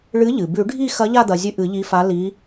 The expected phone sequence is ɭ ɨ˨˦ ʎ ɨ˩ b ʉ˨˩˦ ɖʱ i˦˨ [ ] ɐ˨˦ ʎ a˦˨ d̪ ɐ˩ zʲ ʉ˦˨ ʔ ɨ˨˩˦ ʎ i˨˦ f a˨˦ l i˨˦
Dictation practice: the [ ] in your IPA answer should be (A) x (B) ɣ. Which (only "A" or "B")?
A